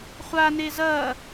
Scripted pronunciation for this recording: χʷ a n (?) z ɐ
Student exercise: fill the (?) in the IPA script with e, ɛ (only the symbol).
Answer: e